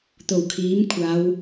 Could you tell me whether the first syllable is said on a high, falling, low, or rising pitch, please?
low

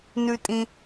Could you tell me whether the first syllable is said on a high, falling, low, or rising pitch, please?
high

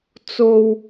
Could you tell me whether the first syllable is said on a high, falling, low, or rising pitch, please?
low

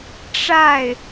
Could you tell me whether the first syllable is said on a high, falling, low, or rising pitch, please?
falling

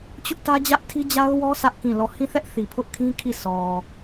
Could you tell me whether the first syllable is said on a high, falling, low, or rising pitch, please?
high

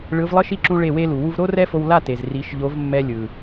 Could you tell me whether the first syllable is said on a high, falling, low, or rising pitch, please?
rising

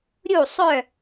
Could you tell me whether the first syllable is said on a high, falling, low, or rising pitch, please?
falling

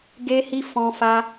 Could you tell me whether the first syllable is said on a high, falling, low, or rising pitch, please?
high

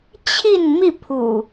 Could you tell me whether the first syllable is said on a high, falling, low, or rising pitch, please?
falling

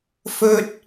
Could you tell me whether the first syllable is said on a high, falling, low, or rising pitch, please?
high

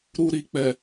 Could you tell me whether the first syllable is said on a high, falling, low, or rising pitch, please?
low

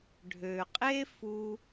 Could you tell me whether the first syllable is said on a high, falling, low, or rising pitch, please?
low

